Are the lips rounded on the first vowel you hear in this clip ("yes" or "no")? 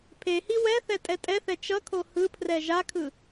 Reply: no